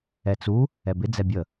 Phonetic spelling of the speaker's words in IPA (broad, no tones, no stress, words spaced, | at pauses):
ɛt͡su | ɛbɪ d͡zɛbʲə